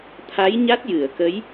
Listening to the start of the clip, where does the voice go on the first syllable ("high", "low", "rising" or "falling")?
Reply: rising